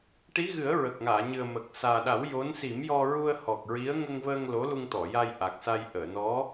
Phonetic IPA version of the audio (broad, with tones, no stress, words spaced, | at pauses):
ʈi˧˥ɣɨ˨˩˦ə̯ ɹə˨˩k̚ŋaː˨˩˨ɲɨ˨˩ə̯ mə˨˩k̚ saː˨˩ɗa˨˩˦w jo˧˥n si˨˩˦mjɔ˧ɹu˧ə̯ hɔ˨˩k̚ɹi˧˥ə̯ ŋə˧ŋvəː˧ŋ lo˧˥lu˧ŋt̪ɔ˨˩˨ja˧j ʔa˨˩k̚sa˧j ʔəː˨˩˨ nɔ˧˥